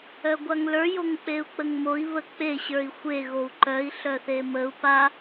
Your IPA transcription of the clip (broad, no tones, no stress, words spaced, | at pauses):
œɡʷaŋlə˞ joŋk͡peu̯k͡pəŋmoi̯ βək͡pe ɕə˞i̯xʷe ɣou̯ǃœi̯ ɬœθeməu̯ pa